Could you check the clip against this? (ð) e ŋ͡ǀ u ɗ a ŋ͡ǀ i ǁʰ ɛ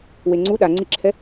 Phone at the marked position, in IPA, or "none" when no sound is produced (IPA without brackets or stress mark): w